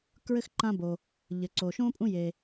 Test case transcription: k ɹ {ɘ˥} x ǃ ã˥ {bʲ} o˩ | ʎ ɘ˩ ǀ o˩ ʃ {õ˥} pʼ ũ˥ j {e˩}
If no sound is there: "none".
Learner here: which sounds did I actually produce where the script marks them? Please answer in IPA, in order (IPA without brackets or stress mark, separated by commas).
ɘ˥, b, õ˥, e˩